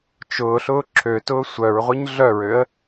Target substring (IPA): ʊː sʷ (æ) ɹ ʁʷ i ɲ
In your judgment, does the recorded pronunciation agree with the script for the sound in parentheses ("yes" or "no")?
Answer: no